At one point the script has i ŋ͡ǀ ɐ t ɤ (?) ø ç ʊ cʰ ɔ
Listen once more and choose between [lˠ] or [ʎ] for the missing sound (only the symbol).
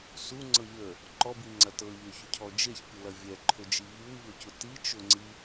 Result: ʎ